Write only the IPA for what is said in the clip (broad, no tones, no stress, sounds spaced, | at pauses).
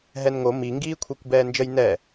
ɦ ɛ n ŋ o m i ŋ ɡ iː kʷʰ i kʷ b ɛː n d͡ʒ ə j n ɛ